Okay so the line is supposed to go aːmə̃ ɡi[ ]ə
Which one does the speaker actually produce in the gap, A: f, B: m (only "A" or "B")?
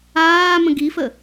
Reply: A